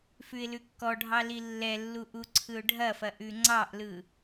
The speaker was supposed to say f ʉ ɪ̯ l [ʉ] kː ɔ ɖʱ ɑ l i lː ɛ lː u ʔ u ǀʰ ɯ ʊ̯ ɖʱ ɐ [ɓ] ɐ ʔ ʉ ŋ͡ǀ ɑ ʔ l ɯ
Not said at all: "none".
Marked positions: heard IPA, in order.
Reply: ʉ, f

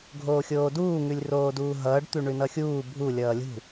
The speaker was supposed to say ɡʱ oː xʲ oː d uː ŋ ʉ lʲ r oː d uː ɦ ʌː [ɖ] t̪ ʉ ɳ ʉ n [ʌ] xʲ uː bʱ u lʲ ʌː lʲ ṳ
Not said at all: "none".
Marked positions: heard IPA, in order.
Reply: ɖ, ʌ

